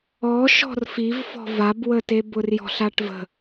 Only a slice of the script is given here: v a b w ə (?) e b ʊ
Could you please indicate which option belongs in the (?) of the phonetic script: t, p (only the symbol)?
t